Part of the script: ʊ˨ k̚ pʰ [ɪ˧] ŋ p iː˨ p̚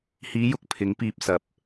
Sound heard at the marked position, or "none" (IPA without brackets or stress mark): ɪ˨˥